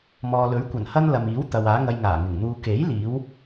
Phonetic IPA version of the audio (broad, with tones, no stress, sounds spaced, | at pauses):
m ɔː˨ l ɵ˨˥ ɥ kʷ ɐ˨˩ n h ɐ˥ n l ɐ˨ m iː˨˥ w t̪ ɐ˨ w aː˨˥ ŋ ɐ˧ j ŋ aː˨˩ ŋ ɪ˨˩ ŋ n̪ uː˨ k e˨˥ j l iː˨˥ w